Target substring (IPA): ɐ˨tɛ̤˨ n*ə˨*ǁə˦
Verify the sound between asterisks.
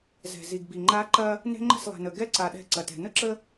incorrect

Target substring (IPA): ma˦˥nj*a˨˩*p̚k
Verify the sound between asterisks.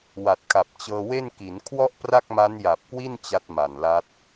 correct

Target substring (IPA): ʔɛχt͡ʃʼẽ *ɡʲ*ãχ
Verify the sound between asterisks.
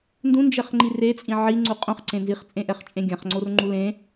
correct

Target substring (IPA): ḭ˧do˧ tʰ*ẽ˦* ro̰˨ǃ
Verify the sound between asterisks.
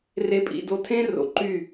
correct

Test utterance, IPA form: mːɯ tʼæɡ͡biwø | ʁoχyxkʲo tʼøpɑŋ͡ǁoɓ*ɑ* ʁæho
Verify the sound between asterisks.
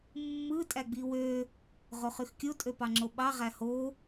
correct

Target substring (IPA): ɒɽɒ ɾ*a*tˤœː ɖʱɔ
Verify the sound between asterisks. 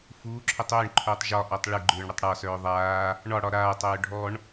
incorrect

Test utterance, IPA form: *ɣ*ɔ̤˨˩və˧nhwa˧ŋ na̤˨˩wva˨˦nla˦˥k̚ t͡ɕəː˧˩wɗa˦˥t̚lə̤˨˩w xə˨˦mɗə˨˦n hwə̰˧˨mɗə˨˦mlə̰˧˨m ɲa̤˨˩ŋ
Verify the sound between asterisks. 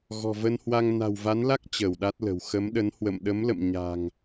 correct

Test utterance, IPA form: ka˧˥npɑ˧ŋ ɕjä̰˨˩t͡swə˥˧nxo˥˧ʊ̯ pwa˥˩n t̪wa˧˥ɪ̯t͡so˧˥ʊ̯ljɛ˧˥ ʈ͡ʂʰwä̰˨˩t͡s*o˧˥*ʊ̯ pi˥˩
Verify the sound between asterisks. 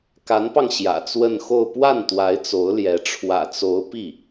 correct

